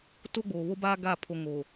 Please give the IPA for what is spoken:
to˦ɡ͡boː˨βo˦baː˦ ɡa˦˨ pʰo˨ ŋo˨

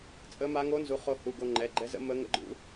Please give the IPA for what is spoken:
t͡sʼə˧˥ma˧˥ ŋo˧˥nzu˩˧˩χo˧hu˩˧˩ ɡo˧ŋ͡ǃɛ˩˧˩ɡ͡ǃɛ˧˥zə̰˧˥ mə˧˥ ŋə̰˧˥ɡ͡ǃṵ˧˥

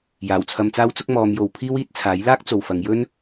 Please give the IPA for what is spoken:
jaː˨˩wt͡sʰɐ˧mt͡saː˥wt͡sʊ˥k̚ mɔː˨˧mjo˨w pʰiː˥wiː˨˥t̚t͡sʰaː˨˥j laː˥k̚t͡so˨wfɐ˨˧ŋjɵ˥n

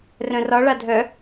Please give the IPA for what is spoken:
rœ̃rɒ ɭadʱœ

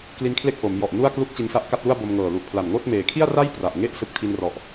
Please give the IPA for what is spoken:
kli˦˥nkʰle˥˩k̚ ʔo˩˦mjɔ˨˩ʔ nu˥˩a̯klu˥˩k̚ t͡ɕi˧nsa˥˩ʔka˥˩t̚lu˥˩a̯ bo˧mŋɤː˨˩ lu˨˩ʔpʰla˨˩nŋoː˥˩t̚ meː˩˦kʰi˥˩a̯ra˥˩j pra˨˩ʔŋe˥˩ʔ sɯ˦˥k̚ tʰi˧nrɔ˨˩ʔ

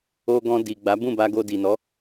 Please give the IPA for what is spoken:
o˧ɡɔ̃˧ di˨ ɡ͡ba˨˦ bũ˦˨ba˧ɡo˧ di˨nɔ˨˦

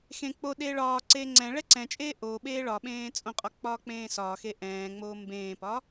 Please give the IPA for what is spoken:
xẽ k͡po ɗeːɭɒːǀeː ŋ͡ǀɛ̃ ɭɛǀɛ̃t͡ʃʼeː ʔoː ɓeːɭɒɓẽː t͡sʼõqʼɒ k͡pɒːk͡pẽːsɒːxe ʔɛ̃ːŋ͡moː mbẽːpɒ

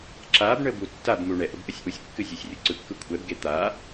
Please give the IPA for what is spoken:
ǁab ɳəbutːabmu ɳɛʔ əbʔəsʲʔusʲkːɨ zʲesʲrʲuǀɯkːɯ kʷʰɛbɡe t̪a

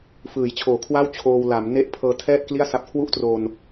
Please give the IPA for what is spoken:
fɯː˩˦jt͡ɕʰoː˨˩kʰwa˥˩w t͡ɕʰoː˧wla˩˦m ne˦˥ʔ pʰɤː˧tʰɛː˥˩t̚ kli˥˩a̯sa˦˥p̚ kʰwu˥˩ʔtro˧n

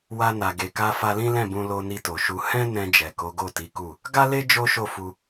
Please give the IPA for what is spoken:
wa˧na˨ɡe˨ka˧ fa˧lĩ˦ lɛ̃˦˨bũ˧lo˧ ni˧to˨ʃu˧ hɛ̃˦nɛ̃˧d͡ʒɛ˨ ko˨˦ɡo˦˨ti˨˦ku˦˨ | ɡa˦le˦ d͡ʒo˦ʃo˦˨fu˧

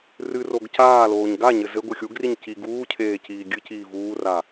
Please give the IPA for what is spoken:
rɨ roɡcaːloːɲ ɡaɲɘ zɘ ɡʷɨxʲuɡriɲ ci ɡuːcʰeː ciːɡʲɨciː vuːra

